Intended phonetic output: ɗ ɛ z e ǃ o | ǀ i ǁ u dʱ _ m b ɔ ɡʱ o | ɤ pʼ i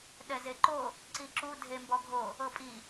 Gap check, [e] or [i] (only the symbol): e